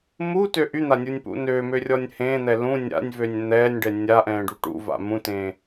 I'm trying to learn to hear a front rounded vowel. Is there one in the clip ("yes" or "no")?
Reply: yes